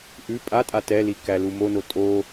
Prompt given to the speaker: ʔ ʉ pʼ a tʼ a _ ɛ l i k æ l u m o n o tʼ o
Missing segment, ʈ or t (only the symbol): t